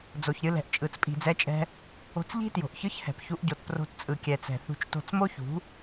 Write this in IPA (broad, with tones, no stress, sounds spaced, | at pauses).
d͡z o˨ ç ɾʲ ɯ˧ l ɛ̤˨ ʔ t͡ʃʼ ɯ˨ t͡s pʼ i̤˨ d͡z ɛ˧ t͡ʃʼ ɛ̤˧ | o̤˧ t͡s ʎ i̤˦ t j o̤˨ ʔ ç ɯ˦ ç h ɛ̤˨ p ç u˦ ʔ ɟ o˧ t p r o̤˧ t t͡sʼ ɯ˨ kʲ ɛ˨ t͡s ɛ̤˨ θ ṳ˧ t͡ʃ t o̤˧ t͡s m o˦ ç ṳ˨˦